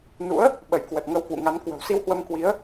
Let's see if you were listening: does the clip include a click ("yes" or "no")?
no